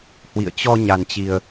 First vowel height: high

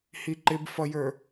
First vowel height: high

